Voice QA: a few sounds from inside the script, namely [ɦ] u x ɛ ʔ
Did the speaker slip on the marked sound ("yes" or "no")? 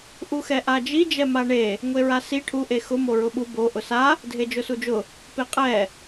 yes